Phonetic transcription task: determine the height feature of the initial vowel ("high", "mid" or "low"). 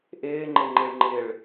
high